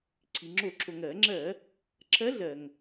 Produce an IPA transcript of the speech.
ǀʰ i˩ ŋ͡ǁ o˧˩˧ ǁʰ o˩ ŋ ɜ˧˩˧ ŋ͡ǁ ɜ˧˩˧ | ǁʰ ɜ˧˥ ɮ ɜ˩ ŋ

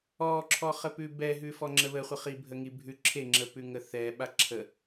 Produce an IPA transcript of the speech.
ɔ ǁʰ ɔ χ ə p ʉ b ɛ ɦ ʉ f ɔ ŋ͡ǁ ə β ə χʷ ə χ i bʱ ə ŋ i bʱ ʉ ǁʰ e ŋ͡ǁ ə p ʉ ŋ ə θ ɛ ɓ a ǁʰ ə

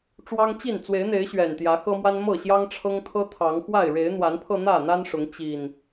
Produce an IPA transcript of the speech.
ʈ͡ʂ w ɑ˦ ŋ t͡ɕ i˥˨ n t͡s w e˨˦ ɪ̯ n̪ e˨˦ ɪ̯ ɕ ɥ ɛ˨˩ n t̪ j ä˨˦ x ɤ˦ m w a˦ n m ɤ˥˨ ɕ j ɑ˦ ŋ ʈ͡ʂʰ ɤ˦ ŋ t̪ʰ ɤ˦ t̪ʰ ɑ˨˦ ŋ x w a˥˨ ɪ̯ ɻ e˨˦ ɪ̯ n̪ w a˨˦ n pʰ ɤ˧ n̪ ä˥˨ n̪ a˦ n ʂ ʊ˨˦ ŋ t͡ɕ i˨˩ n

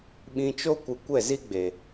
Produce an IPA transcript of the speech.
ɓ ĩ˧ t͡ʃ o˦ kʷ ɨ˧ kʷ ɛ˦˨ z i˦ ɡ͡b e˨

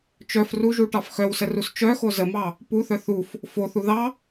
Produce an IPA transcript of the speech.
t͡ʃ œ f r u ʒ u ʈ ɑ f x œ w s ə r u s t͡ʃ œ x o z ə m ɑ | p u θ œ θ u f | f o θ u ð ɑ

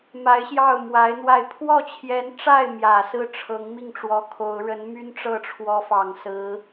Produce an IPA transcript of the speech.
m a˧˥ ɪ̯ ɕ j ɑ˥˩ ʊ̯ m w a˧˥ ɪ̯ n̪ w a˥˧ ɪ̯ pʰ w ɔ˥˩ t͡ɕʰ j ɛ˧˥ n ʈ͡ʂ a˥˩ ɪ̯ m j ä˨˩ s ɹ̩˥˩ ʈ͡ʂʰ ɤ˧˥ ŋ m i˥˩ ŋ ʈ͡ʂ w ɔ˧˥ kʰ o˧˥ ʊ̯ ɻ ə˧˥ n m y˥ n ʈ͡ʂ ɤ˥˩ ʈ͡ʂʰ w ɔ˧˥ f ɑ˨˩ ŋ s ɹ̩˧˥

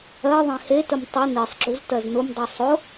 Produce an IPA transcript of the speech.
ɜ ðˤ ẽ h e t ə m tˤ ʊ n i sˤ ɡ͡ǁ u z t ɜ z n ʊ m dˤ o sˤ ʊ

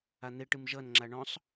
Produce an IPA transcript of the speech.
a n̪ e ʈ ɨ m ʒ ʌ n ŋ͡ǁ a ɳ ɔ̃ sˤ

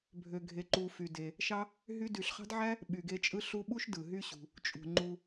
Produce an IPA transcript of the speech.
bʱ ø˨ ɡʱ e˨ ǃ u˨ f y˩ d e˩ | ʃ ɑ˦ | ɦ y˥ d y˨ ɬ χ ɑ̤˥ d ʕ æ˥ | ɓ y˨ ɡ e˦ t͡ʃʼ ɯ˥ ɬ u˦ ɓ u˥ ʃ d ɯ˩ ɦ y˦ ɕ ṳ˩ | t͡ʃʼ ṳ˩ ŋ͡ǃ u˨

